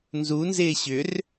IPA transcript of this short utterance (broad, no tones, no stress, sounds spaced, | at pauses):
n z u n z ɪː ɕ ʏ r